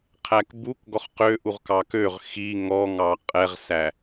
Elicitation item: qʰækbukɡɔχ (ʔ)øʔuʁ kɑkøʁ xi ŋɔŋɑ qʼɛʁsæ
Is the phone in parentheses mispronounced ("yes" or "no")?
yes